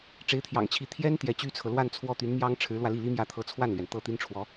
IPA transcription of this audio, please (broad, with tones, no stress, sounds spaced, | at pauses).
ʈ͡ʂ e˧˥ ɪ̯ t̪ʰ j ɑ̰˨˩ ŋ t͡ɕʰ i˧˥ t̪ʰ j ɛ˥ n t̪ j ɛ˧˥ t͡ɕ y˥ t͡sʰ ɤ˨ l w a˥˧ n t͡sʰ w ɔ˥˩ t̪ y˧˥ n m j ɑ˥ ŋ ʈ͡ʂʰ ɻ̩˧˥ l w ä˧ l i˥˩ l i˥ m j ä˥˩ t̪ʰ ɤ˧˥ t͡sʰ w a˥˩ n l ɥ ɛ˩ n t̪ ɤ˥˩ t̪ i˥ n ʈ͡ʂʰ w ɔ˧˥